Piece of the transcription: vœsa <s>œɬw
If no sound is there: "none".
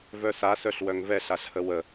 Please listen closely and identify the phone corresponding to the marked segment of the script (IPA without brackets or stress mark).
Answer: s